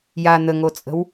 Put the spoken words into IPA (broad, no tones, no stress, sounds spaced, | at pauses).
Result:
j a n̪ ə ŋ o t͡sʼ ə̤ w